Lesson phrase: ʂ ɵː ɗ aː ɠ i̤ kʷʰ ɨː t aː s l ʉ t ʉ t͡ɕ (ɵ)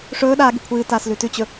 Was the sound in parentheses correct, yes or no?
yes